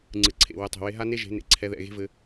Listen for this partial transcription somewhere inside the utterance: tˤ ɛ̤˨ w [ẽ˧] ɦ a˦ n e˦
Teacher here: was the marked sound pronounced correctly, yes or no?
no